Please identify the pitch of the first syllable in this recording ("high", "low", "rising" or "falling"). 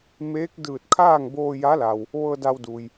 rising